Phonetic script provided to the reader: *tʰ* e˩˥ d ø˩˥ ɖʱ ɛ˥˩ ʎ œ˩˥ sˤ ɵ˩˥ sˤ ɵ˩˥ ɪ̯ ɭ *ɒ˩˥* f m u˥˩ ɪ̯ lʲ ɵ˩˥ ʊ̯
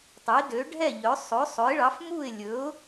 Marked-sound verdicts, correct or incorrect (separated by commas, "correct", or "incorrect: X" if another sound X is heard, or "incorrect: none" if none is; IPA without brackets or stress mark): incorrect: tˤ, incorrect: ɑ˩˥